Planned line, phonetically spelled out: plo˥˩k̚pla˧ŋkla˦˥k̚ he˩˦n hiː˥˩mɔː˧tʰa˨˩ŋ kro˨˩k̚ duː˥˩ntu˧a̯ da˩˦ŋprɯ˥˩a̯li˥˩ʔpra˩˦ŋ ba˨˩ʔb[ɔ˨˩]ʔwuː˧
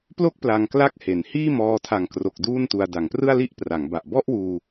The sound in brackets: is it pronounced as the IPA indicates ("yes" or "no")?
no